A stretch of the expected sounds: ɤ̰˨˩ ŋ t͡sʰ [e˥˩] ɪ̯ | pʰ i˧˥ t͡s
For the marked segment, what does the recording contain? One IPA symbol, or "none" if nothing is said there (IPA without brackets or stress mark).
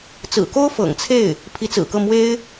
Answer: e˥˩